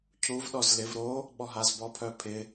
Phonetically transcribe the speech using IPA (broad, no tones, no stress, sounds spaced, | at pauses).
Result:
cʰ u v ɗ ɔ z l ɪ v ɾ o | ɓ ɔ ɦ a z b ɔ pʰ œ pʰ ɪ